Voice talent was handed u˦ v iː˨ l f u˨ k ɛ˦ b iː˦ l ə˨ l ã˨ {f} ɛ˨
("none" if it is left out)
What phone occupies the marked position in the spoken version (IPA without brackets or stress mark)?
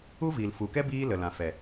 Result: f